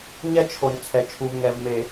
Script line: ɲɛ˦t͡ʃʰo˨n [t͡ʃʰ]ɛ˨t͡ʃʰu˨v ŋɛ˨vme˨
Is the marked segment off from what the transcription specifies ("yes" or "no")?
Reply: yes